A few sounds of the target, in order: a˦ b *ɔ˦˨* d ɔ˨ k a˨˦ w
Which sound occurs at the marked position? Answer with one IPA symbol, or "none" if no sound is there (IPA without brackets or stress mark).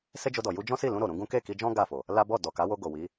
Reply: ɔ˦˨